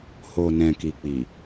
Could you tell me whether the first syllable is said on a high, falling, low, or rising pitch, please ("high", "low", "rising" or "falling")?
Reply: low